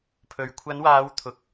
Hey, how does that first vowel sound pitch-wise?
low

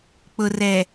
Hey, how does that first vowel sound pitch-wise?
low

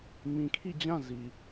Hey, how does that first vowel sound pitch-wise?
low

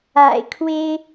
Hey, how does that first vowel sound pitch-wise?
low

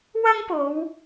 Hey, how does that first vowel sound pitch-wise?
high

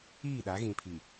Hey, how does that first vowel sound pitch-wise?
falling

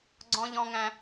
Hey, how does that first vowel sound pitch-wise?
high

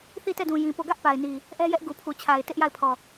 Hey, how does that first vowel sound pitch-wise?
falling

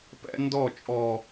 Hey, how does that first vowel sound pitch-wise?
high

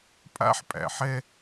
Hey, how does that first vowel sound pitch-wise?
high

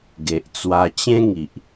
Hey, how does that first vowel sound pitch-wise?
low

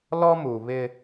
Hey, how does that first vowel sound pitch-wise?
high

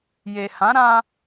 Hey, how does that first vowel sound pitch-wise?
low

